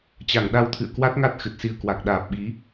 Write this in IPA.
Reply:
t͡ɕ a˧˩ ŋ ɗ a˧ w t̪ʰ ɨ̰˧˨ ə̯ k w a˦˥ t̚ ŋ a˦˥ t̚ x ɨ˨˩ t̚ s i˧ ə̯ k w a˨˩ k̚ ɗ aː˨˩ p̚ ɓ i˨˦

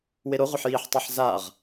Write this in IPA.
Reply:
w e ɾ o ʁʷ ʌ ħ j i ħ tˤ e ħ z a ʁ

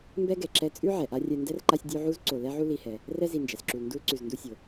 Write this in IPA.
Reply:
m b ɛ˥ ɡ ɛ˩ ǁ ɛ˦ t͡sʼ ʉ˥ ʕ ɛ˩ ʔ a˥ rʲ ɛ˦ n d ɛ˥ r ǃ a˦ sʲ dʲ u˦ ʕ u˥ z ǀ o˨ l ɛ˦ ʕ u˦ l i˨ h ɛ˩ | r ɛ˦ z i˨ n d͡ʒ ɛ˩ s ǁ u˨ l n d u˦ l ǀ ʉ˨ z n d u˦ sʲ o˩

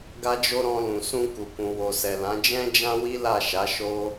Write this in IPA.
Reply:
ɡ a˦ d͡ʒ o˦ ɾ ɔ̃˧ l ũ˨ s ũ˧ k u˨ k ũ˨ w o˨ s ɛ˨ l ã˨˦ d͡ʒ ɛ̃˦ d͡ʒ ã˦ w i˦ l a˦˨ ʃ a˨˦ ʃ o˦

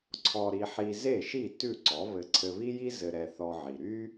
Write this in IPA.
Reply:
ǀʰ ɔ˧ ɾ i˧ ħ i˧ z e˥˩ ʃ i˥˩ t ʉ˥˩ ǀ ɔ˩˥ β ɘ˧ ǀʰ ɘ˧ β i˥ j i˥ z ɘ˧ ɾ ɛ˧ θ ɔ˧ ʕ i˩ ɾ y˥

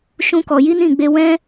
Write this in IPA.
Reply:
ʃ ũ˦ k ɔ˧ j i˦ n ĩ˦˨ ɡ͡b e˧ w ɛ̃˦

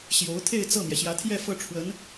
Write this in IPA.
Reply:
ɕ j o˧˥ ʊ̯ t̪ʰ e˥˧ ɪ̯ t͡s ɤ˥˩ m j ɛ˩ ɕ j ä˧˥ t̪ʰ j ɛ˥˧ f ɤ˥˩ ʈ͡ʂʰ w ə˧˥ n

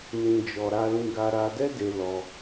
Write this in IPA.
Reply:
n ĩ˧ d͡ʒ ɔ˧ ɾ a˧ l ĩ˧ ɡ a˧ ɾ a˧ d ɛ˦ d e˧ l ɔ˧

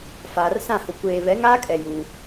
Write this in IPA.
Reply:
f aː˨ r s ã˦˨ h ʊ˨ kʷ eː˨ β ɛ˨˦ ŋ aː˦ kʼ ɛ˨ j u˦

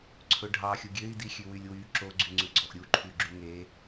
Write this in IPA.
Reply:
ǀʰ ɵ ɖʱ ɑ xʲ u ɡʲ ø i̯ d i xʲ ʉ w y lʲ w y ǁ o ɡ͡ǀ y ŋ͡ǀ ʉ ɡ͡ǀ ɔ ʔ ɾʲ u ǃʰ y ɡ͡ǁ y ŋ e

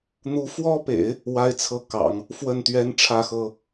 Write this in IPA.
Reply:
n̪ u˧˥ f w ɔ˥ p ḛ˨˩˦ ɪ̯ | w a˥ ɪ̯ t͡sʰ ɤ˥˩ k ɑ̰˨˩˦ ŋ | f w ə˥˩ n t̪ ɥ ɛ˥ n ʈ͡ʂʰ ä˥ x ɤ˥

